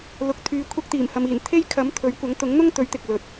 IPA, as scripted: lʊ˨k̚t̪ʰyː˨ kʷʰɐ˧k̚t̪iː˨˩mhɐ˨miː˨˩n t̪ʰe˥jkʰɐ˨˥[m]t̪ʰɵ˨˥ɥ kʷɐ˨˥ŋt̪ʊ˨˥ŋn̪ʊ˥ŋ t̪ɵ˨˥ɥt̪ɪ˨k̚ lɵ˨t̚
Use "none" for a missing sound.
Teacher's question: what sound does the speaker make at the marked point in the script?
m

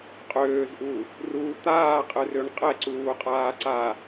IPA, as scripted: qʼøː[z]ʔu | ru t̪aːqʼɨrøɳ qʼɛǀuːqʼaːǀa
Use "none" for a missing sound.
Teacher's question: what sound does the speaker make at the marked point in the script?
z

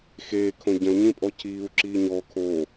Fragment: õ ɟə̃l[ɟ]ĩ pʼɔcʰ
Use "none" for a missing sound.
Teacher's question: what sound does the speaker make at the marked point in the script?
ɲ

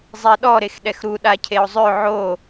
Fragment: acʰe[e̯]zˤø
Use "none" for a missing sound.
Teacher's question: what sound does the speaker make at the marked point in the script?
o̯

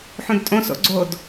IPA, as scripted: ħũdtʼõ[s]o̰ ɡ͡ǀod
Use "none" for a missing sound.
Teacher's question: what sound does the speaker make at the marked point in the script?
s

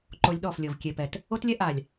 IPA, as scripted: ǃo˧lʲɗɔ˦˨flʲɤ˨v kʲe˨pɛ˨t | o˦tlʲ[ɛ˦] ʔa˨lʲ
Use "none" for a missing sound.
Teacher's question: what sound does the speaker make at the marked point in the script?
ɛ˦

